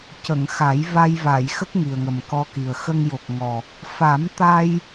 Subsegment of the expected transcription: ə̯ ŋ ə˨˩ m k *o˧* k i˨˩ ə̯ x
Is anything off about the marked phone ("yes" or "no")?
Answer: yes